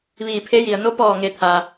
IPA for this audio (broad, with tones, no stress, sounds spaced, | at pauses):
ʋ iː˧˩ pʰ e˧˥ j i˩ ə̯ n o˧˥ p ɔː˧˩ ŋ e˩˧ t̪ʰ a˩